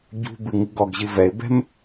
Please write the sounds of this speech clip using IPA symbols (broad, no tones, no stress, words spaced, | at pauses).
ɟṳbɨ ŋɨɡɔɡʑɨ vɛɪ̯bɛ̤m